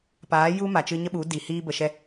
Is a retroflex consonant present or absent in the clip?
absent